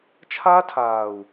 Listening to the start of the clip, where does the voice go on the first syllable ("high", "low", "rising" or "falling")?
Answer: high